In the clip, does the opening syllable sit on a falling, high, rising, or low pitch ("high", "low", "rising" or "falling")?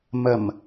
low